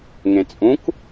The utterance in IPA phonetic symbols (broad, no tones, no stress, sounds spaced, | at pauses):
ŋ ẽ t͡sʼ ũ k